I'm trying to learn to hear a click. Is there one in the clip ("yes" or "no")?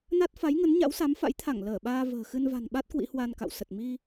no